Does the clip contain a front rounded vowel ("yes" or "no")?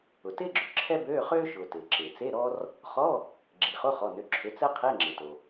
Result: yes